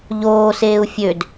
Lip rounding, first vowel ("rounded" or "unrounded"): rounded